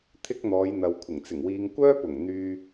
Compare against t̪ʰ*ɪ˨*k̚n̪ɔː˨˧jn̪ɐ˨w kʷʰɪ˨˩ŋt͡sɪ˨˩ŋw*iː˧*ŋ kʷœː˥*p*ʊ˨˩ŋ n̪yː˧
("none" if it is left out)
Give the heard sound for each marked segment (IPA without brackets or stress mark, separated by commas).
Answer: ɪ˥, iː˧, p